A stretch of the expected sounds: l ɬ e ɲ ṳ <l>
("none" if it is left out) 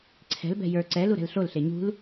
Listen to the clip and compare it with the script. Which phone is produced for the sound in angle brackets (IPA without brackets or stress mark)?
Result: l